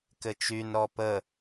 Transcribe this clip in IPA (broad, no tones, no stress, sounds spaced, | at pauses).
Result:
k ɘ t͡ʃ y n ɾ ɔ p ə